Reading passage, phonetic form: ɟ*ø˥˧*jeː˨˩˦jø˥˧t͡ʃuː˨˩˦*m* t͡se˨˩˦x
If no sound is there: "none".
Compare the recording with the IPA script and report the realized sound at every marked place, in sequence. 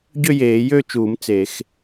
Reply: ø˥˧, m

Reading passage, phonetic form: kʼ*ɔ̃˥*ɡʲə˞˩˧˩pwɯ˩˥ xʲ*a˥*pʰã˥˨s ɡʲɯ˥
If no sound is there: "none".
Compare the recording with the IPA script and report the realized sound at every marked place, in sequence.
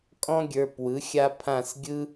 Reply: ɔ̃˥, a˥

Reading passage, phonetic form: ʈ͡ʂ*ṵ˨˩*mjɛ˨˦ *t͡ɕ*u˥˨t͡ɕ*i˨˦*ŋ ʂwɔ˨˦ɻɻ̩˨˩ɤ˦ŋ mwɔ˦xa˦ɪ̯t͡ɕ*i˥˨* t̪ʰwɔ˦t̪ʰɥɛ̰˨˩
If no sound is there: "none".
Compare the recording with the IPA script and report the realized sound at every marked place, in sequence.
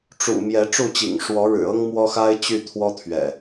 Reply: ṵ˨˩, ʈ͡ʂ, ḭ˨˩, y˥˨

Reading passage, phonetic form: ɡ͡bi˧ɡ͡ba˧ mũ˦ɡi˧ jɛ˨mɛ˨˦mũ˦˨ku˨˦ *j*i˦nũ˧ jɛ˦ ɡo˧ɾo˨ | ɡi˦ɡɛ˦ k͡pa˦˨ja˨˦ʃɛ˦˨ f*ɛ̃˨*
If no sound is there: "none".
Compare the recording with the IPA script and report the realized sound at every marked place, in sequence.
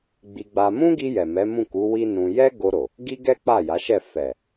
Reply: w, ɛ˨

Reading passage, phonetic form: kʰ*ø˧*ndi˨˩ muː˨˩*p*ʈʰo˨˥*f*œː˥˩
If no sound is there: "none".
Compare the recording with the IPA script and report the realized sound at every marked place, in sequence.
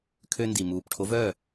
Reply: ø˧, p, v

